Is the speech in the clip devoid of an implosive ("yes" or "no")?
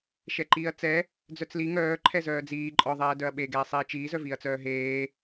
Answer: no